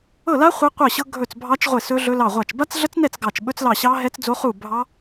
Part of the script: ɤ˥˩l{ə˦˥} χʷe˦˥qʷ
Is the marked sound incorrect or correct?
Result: incorrect